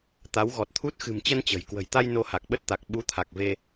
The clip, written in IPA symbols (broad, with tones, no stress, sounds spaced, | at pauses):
t̪ a˨˦ w ɣ ɔ˨˩ t̚ t̪ʰ u˦˥ t̚ x ɨ̤˨˩ m t͡ɕ ə˧ n t͡ɕ ə̤˨˩ j k w ə̤˨˩ j t̪ a˧ j n o˧ h a˨˩ k̚ ɓ ə˦˥ t̚ t̪ a˨˩ k̚ ɓ u˨˦ t̪ʰ a˨˩ k̚ v e˧